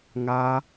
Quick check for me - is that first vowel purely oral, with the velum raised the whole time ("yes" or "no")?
yes